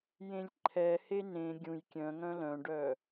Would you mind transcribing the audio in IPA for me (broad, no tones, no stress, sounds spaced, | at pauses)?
j ẽ lʲ ǃʰ ɛ h e n ẽ ɡʲ ũ j kʲ œ̃ ŋ œ̃ l œ̃ ɖ œ